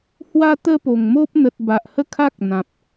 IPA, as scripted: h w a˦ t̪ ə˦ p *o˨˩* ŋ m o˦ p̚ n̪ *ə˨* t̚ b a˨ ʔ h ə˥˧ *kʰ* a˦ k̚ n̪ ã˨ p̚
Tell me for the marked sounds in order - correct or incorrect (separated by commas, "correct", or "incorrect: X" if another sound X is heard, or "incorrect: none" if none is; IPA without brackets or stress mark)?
correct, correct, correct